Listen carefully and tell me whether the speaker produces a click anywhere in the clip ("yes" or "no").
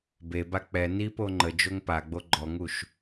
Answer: yes